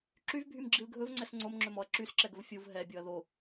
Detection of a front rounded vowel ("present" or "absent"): present